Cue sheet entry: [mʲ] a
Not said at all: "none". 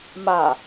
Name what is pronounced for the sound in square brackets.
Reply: m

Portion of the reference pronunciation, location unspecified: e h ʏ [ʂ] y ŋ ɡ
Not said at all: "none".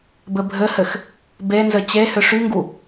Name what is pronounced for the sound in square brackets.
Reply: ʂ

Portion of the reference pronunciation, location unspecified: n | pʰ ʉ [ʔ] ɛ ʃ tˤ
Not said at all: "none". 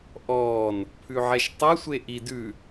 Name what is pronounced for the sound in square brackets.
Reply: ʕ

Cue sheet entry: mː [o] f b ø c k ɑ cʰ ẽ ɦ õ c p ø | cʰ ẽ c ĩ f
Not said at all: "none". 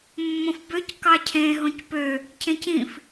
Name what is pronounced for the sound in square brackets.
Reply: õ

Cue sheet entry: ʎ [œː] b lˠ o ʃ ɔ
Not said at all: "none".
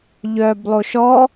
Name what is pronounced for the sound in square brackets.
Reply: œː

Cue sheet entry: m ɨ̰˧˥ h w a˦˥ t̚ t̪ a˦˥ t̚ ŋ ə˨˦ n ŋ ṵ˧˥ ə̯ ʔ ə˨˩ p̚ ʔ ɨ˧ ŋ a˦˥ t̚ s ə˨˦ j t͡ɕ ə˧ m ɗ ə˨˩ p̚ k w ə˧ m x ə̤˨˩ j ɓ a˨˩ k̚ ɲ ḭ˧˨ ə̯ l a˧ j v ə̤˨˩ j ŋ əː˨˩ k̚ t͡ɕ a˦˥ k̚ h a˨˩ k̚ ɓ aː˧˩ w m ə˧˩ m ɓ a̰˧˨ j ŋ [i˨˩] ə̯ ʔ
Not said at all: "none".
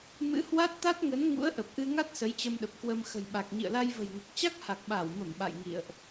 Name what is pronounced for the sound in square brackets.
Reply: ḭ˧˨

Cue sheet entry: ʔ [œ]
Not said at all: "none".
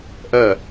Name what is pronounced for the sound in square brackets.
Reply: œ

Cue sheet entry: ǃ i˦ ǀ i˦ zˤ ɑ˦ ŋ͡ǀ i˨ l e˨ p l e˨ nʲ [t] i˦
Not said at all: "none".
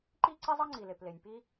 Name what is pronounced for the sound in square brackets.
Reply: p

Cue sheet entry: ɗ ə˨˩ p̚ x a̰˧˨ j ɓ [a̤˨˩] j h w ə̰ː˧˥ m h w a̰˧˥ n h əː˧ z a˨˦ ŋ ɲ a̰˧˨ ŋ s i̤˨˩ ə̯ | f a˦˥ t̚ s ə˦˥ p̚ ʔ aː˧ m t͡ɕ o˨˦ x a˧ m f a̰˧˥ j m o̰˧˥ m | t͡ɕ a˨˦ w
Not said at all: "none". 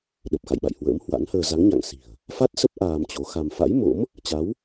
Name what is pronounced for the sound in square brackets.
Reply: a̰˧˨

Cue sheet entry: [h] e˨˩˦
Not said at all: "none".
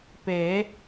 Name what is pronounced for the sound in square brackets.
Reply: p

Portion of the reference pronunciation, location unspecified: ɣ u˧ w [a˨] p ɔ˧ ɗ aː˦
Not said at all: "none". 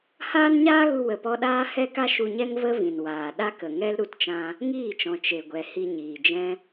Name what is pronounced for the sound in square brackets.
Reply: ə˨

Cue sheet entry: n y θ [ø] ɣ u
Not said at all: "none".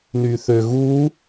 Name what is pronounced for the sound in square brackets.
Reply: ø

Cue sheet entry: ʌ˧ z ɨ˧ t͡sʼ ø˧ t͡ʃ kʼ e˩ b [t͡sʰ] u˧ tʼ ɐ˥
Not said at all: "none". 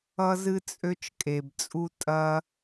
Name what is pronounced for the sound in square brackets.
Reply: t͡sʼ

